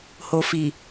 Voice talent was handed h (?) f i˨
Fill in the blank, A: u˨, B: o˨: B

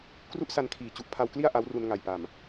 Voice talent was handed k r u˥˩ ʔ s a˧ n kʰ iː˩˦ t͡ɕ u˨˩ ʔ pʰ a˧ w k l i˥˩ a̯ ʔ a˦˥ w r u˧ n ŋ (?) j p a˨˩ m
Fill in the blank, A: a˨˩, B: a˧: A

